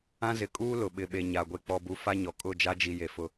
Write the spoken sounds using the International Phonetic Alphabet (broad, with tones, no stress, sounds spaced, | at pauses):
ã˦ z ɪ˨ kʼ uː˦ l ʊ˨ ɓ ɪ˨ ɓ e˨ ɲ a˨ ɡʷ e˨ k͡p ɔ˨ b u˨ f a˦ ɲ ɔ˨ kʼ ʊ˦˨ d͡ʒ a˦ d͡ʒ i˨ j e˨ f ʊ˦